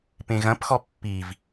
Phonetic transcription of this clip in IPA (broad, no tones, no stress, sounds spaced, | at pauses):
p ẽ ɣ ɐ̃ p x ɔ pː i v